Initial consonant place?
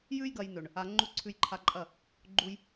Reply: palatal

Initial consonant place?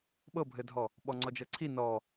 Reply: labial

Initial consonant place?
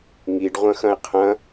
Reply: velar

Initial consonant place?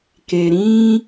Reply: velar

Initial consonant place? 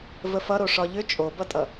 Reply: labial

